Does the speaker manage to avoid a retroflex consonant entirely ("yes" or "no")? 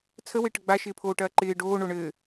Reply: no